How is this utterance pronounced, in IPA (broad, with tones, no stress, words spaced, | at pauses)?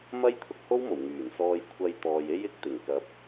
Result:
mɐ˥jt̪ʰʊ˧k̚ho˥wmo˨˩w ŋyː˨˩nsɔː˧jkʷʰɐ˧j t̪ɔː˨j e˥jɪ˨˥k̚ t̪ɪ˨˩ŋ kɐ˨˥p̚